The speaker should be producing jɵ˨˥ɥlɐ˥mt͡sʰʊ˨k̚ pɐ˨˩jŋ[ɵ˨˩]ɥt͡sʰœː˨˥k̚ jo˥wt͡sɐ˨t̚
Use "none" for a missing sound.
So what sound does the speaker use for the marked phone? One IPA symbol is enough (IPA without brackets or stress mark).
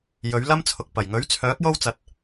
ɵ˨˥